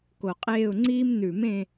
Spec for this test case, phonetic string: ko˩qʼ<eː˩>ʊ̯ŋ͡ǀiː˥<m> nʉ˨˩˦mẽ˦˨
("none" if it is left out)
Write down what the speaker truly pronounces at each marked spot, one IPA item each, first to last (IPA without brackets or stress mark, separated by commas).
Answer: eː˦˨, m